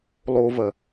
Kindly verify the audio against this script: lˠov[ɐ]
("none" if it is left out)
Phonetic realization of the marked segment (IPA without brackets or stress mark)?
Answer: ɐ